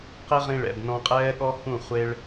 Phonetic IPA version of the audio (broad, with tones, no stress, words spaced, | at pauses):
qe˦ʁĩ˧ ɭɛ̰˨bnɔ̃˧qʼɛː˦ɠɔ˦ hũ˦˨χʷe˦ɭ